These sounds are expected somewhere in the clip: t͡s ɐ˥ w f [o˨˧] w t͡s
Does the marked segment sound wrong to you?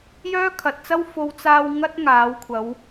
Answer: no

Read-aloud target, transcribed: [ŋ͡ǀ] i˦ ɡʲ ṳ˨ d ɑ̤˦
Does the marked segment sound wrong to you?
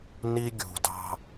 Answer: yes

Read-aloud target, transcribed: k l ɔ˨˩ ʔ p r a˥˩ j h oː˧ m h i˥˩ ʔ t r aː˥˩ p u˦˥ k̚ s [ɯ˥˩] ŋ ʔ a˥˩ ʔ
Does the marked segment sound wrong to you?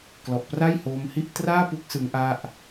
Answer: yes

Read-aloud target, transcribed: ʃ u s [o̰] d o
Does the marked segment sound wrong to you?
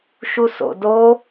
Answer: no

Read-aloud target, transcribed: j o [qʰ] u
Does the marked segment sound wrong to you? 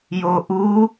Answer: yes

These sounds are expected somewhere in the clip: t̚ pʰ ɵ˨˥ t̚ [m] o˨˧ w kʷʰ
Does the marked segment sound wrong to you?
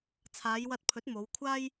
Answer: no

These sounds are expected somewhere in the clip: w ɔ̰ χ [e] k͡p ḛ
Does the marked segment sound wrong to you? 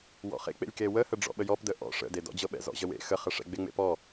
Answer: yes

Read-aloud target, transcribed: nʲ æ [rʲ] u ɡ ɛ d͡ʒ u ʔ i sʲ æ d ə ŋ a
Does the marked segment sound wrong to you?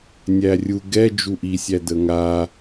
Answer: no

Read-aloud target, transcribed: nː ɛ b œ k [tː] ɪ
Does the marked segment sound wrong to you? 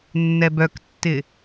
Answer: no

